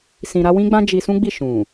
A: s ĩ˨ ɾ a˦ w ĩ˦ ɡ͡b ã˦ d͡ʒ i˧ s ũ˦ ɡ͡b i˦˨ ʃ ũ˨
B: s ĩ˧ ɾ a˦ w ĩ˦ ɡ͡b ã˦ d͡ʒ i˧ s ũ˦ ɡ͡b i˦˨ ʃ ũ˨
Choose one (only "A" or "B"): B